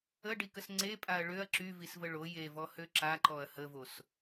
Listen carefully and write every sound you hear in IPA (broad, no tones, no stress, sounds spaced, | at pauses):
ə ɖ i k ə s ŋ͡ǀ e pʼ a ɐ̯ ɭ ø ɐ̯ ǁ y v i s v ə ɭ o j e v ɔ h ø ǁ a ǃ ɔ ɐ̯ h ə v o s